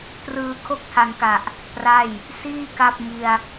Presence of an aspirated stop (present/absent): present